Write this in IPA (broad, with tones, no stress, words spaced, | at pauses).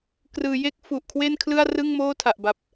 krɯː˩˦je˦˥k̚ fu˨˩ʔkʰwe˥˩nkʰlɯ˥˩a̯ rɯ˥˩ŋmoː˥˩tʰa˨˩ʔba˨˩p̚